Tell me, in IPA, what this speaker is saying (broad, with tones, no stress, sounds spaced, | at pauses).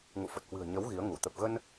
ŋ ṵ˧˨ f ə˨˩ t̚ h w ɨ̤˨˩ ə̯ ɲ ə˨˦ w ɣ i˨˦ ə̯ ŋ u˧˩ t̪ ə˨˩ p̚ ɣ ə˧ n